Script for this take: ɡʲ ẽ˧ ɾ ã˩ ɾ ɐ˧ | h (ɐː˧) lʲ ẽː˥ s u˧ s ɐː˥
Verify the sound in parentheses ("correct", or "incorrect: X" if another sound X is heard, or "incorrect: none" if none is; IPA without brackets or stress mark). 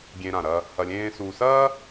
incorrect: ɐ˧